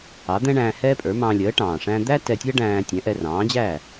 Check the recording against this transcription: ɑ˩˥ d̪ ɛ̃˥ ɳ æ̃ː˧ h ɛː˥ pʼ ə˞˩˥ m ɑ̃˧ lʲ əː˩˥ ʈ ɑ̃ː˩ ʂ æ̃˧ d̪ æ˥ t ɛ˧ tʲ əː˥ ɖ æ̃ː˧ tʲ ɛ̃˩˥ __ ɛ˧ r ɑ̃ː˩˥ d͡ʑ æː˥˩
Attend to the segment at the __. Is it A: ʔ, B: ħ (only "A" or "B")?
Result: A